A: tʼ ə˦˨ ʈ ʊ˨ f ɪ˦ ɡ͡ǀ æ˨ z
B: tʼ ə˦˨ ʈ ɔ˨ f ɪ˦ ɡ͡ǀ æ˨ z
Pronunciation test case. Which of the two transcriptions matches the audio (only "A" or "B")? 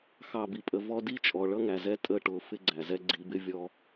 A